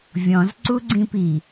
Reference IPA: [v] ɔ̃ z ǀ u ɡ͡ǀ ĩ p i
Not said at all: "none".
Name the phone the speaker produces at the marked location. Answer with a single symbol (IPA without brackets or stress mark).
vʲ